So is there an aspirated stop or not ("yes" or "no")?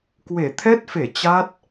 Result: yes